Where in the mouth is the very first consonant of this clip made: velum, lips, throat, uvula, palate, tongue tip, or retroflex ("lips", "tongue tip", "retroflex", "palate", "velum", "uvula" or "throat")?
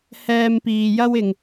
throat